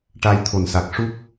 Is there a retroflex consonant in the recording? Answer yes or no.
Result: yes